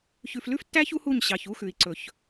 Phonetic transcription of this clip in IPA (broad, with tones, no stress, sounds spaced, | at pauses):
ç ʉ˨ f l ʉ˦ f tː æ˦ ç u˦ h u˦˨ ɲ ɕ ɑ˨ ç u˦ x ʉ˨ i̯ ǀ ɵ˨ ç